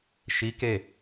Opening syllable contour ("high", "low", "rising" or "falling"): rising